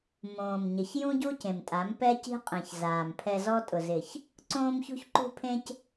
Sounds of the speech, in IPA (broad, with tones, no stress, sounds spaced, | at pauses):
m õː˨ m ɲ ɪ˨ ç j ũ˦ ɟ u˦ c ẽ˨ m tʼ a˨˦ m p ɛ˦ c i̤˦ qʼ ẽ˨ ç z aː˨ m pʰ ɛ˧ z ɔ˧ tʼ ʊ˨ z ɪ˨ ç | ǀ õː˧ m ç ṳ˧ ç ǃ ṳ˧ pʰ ẽ˧ c